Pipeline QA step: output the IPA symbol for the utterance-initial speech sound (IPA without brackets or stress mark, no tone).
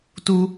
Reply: t